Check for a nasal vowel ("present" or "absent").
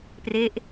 absent